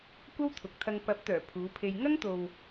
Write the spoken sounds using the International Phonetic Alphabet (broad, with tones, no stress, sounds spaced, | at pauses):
kʷ ɐ˥ w t̪ʰ ʊ˨ k̚ t̪ʰ ɐ˧ ŋ p ɐ˨˥ p̚ t̪ œː˨˩ pʰ uː˨˧ pʰ e˧ j ŋ ɐ˥ ŋ t̪ o˨ w